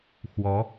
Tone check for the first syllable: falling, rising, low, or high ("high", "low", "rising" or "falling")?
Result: rising